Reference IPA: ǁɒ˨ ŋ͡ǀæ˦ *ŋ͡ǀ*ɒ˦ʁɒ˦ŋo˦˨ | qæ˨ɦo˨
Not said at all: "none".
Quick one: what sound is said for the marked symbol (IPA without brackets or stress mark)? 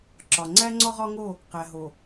ŋ͡ǀ